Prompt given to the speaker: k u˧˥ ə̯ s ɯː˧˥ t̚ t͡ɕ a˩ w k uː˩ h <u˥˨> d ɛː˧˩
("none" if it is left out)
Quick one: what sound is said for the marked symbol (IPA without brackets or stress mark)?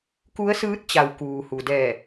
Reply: u˩